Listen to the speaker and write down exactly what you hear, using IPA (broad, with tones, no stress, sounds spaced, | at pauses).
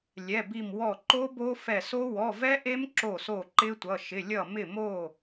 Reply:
lʲ ɛ˩˧˩ b i˧˩ m w ɔ˧˩ ǃ o˦˥ b o˦˥ f ɛ˧˩ s o˦˥ w ɔ˩˧˩ v ɛ˦˥ ʔ e˦˥ m ǁ o˥˩ s o˥˩ ǃ ɪ˦˥ tʷ ʌ˩˧˩ ʃ ɪ˩˧˩ lʲ ʌ˥˩ m ɪ˥˩ m o˥˩